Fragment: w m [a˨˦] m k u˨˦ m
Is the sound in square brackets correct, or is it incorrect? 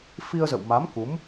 correct